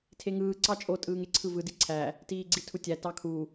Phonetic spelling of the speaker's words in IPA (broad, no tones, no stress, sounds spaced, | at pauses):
tʰ e ŋ ɯː ǀ ɑ t͡ʃʼ o tʼ ɯː ŋ e ǀʰ ɯ v ɯ d i ǀʰ æ | t iː ɡ͡ǀ i tʰ u tʲ æ t ɑ kʰ u